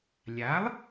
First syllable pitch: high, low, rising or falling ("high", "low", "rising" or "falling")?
rising